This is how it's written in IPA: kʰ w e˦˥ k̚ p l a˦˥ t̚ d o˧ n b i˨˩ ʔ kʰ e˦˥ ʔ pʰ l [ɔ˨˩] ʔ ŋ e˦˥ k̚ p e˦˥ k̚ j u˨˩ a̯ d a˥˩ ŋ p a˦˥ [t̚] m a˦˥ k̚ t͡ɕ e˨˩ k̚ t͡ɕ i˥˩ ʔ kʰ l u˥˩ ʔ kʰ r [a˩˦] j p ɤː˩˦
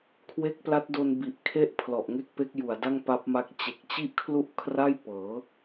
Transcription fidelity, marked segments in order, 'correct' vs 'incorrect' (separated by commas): correct, incorrect, incorrect